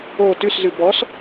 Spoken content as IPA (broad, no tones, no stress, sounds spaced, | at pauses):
o t ʉ s z ʉ b ɔ s